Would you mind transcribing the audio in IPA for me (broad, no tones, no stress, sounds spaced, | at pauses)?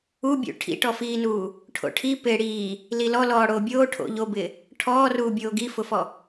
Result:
u bʲ ṵ ʈʰ ḭ ʈ ɔ f iː n uː | ʈʰ o̰ ʈʰ i p ɪː ɽ iː | l i l ɔ l ɔː ɽ oː bʲ oː ʈʰ o̰ ʎ o b ɪː | ʈʰ ɔː r uː bʲ oː ɡ i f ʊ f ɔ